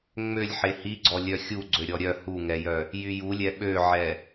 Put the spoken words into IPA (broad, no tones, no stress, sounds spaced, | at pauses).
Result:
ŋ͡m ø lʲ ħ e h i ɡ͡ǀ ɔ lʲ œ xʲ u ɡ͡ǀ ø ɾʲ ɔ ɾʲ œ h u ŋ ɛ j œ | j y j u lʲ ɛ ɓ ø ʕ ɛ